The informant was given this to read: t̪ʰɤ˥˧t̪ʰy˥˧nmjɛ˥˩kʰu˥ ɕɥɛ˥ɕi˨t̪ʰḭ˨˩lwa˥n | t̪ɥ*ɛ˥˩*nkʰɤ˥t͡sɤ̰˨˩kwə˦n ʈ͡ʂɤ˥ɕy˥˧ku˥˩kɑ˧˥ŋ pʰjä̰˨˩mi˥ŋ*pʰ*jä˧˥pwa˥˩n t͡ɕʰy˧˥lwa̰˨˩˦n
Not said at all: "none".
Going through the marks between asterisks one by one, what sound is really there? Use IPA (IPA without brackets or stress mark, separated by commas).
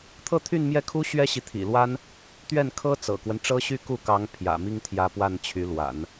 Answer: ɛ˥˩, t̪ʰ